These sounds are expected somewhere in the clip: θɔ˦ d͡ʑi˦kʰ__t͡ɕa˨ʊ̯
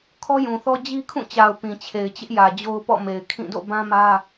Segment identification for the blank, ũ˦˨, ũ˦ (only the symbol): ũ˦˨